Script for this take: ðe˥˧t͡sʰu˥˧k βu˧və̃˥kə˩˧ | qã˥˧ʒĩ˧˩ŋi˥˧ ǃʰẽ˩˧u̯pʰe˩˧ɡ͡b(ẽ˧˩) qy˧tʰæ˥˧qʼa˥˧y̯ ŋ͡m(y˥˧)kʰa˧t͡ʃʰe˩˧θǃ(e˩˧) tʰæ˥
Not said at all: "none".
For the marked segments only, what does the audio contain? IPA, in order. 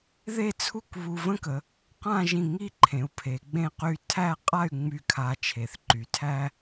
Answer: ẽ˥˧, y˥˧, y˩˧

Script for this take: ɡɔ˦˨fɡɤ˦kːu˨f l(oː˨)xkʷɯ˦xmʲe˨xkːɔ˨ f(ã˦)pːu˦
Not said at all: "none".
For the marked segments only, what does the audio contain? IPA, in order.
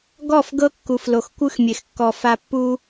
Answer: o˨, a˦

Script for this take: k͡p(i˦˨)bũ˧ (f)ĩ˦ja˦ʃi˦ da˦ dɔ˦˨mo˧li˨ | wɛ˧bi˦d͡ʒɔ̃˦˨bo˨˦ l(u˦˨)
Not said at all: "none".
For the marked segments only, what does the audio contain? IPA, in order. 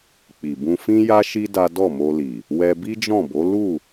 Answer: i˨, f, u˦˨

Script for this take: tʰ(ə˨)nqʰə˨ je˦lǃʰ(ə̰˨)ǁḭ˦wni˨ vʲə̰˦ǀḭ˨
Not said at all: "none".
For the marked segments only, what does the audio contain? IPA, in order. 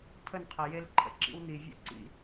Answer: ə˦˨, ə̰˨

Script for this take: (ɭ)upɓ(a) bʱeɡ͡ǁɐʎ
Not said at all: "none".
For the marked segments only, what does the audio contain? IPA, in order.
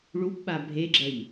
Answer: ɭ, a

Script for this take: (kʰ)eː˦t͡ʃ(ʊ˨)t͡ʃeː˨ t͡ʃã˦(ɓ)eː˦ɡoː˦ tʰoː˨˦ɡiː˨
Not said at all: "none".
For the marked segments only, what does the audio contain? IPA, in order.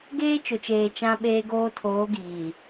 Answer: ɡ, ʊ˨, ɓ

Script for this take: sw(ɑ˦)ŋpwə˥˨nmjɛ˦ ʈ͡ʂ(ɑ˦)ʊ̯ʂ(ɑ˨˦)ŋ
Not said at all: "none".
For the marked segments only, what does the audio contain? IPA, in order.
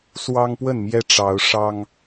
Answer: ɑ˦, ɑ˨˦, ɑ˦

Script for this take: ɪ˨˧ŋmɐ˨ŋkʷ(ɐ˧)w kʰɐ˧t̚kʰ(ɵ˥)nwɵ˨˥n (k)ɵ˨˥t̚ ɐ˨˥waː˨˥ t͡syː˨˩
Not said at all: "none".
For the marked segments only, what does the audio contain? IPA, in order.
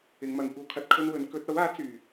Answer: ɐ˥, ɵ˥, k

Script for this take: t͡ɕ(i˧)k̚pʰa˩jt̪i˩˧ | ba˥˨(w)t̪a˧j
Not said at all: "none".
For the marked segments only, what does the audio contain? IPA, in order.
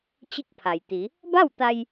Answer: i˥˨, w

